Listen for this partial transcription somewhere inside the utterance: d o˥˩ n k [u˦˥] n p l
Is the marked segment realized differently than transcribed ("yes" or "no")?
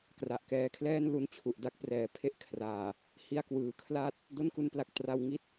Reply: no